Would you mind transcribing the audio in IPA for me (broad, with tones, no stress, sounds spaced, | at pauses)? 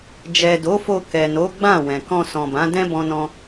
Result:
d͡ʒ ɛ˨ d o˨˦ f o˧ k ɛ˨ n o˨˦ ɡ͡b ã˦˨ w ɛ̃˨ k ɔ̃˧ s ɔ̃˨ b ã˨˦ d ɛ̃˦ b ɔ̃˦ n ɔ̃˦